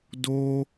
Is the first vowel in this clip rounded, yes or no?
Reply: yes